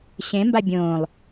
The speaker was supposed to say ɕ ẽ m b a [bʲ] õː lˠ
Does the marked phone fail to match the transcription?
no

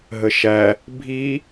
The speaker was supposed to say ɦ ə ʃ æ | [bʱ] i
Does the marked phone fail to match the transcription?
no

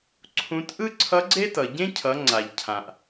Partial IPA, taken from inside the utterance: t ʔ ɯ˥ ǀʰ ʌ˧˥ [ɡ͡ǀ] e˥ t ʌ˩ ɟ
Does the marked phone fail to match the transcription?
no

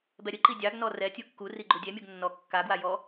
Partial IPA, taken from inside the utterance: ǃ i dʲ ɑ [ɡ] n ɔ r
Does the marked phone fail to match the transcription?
no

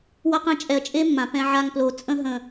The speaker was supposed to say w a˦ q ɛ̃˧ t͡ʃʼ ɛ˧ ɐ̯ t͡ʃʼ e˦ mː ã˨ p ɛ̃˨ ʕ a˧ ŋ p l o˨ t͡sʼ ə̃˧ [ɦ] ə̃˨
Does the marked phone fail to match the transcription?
no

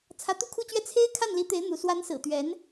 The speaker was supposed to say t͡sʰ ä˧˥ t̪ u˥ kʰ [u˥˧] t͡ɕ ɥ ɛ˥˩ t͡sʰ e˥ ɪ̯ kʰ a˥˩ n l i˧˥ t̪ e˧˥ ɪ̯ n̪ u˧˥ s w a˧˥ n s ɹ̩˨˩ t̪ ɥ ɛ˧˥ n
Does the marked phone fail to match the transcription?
no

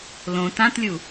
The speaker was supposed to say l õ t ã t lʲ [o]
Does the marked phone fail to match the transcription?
yes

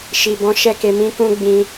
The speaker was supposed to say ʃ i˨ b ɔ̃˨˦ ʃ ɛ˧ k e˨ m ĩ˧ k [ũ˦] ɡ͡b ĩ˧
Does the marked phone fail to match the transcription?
no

